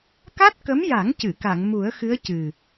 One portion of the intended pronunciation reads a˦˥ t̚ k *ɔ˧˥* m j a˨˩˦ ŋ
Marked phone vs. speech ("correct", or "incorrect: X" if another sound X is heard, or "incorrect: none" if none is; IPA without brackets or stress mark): incorrect: ə˧˥